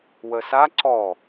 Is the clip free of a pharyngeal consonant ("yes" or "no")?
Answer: yes